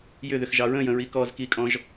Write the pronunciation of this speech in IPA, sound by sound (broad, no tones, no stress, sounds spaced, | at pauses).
j ʏ ð ʏ x ʒ ɑ ɹ ə̃ j ə̃ ɹ i k ɔ z k i kʼ ɔ̃ ʒ